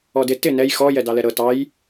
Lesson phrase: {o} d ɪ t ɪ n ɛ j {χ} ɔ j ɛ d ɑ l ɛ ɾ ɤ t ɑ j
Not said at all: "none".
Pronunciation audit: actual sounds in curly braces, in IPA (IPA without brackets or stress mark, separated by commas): ɔ, x